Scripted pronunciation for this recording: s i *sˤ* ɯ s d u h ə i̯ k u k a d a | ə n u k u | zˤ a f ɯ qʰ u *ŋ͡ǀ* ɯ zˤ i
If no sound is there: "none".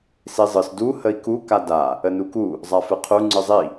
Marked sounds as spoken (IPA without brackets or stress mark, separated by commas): zˤ, ŋ͡ǀ